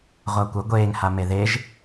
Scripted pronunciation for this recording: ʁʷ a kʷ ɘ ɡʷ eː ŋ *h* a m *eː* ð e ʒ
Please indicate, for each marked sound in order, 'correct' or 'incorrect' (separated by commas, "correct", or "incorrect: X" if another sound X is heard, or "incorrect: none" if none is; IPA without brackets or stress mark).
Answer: correct, incorrect: e